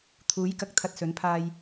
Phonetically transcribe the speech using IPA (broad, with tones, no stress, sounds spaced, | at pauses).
t̪ʰ uː˨˥ j k ɐ˨ k̚ t̪ʰ ɐ˧ t̚ s ɵ˨˥ n pʰ aː˧ j